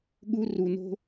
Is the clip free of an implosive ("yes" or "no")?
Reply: no